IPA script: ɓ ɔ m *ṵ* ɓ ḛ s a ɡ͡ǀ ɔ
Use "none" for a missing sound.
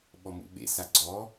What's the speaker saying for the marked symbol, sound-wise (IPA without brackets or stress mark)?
ṵ